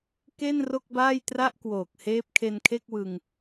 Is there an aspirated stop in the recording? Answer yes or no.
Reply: yes